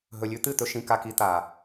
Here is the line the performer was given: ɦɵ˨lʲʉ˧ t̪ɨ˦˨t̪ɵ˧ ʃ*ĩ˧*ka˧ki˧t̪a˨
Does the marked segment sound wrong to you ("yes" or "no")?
no